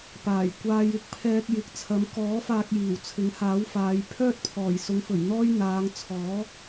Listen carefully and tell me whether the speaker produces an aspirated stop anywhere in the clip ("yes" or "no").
yes